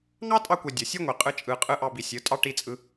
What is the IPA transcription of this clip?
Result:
ŋ ɑ˦ tʼ ɑ˧ kʷ e˨ dʲ o˨ sʲ ɯ˦ ŋʷ i˨ qʼ ɯ˧ t͡ʃʼ ɯ˨ qʼ ɯ˧ ʔ ɑ˧ b i˨ sʲ ɯ˨˦ tʼ ɑ˦ ʈ i˧ t͡sʼ ɯ˧

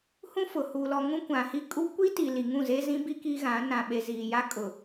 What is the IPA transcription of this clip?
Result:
h ũ˦ f ʊ˨ h u˨ l ɔ˨ ŋ ũ˦ kʷ ã˨ h i˦ kʼ u˦ kʷ i˦ t i˨ l i˨ ŋ ũ˦˨ z e˦ z ĩ˦ b i˦ k i˦ ɣ ã˨˦ n ã˨ ɓ e˨ z iː˨ j a˦ kʼ ʊ˨

